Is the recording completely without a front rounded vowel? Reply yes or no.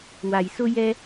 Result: yes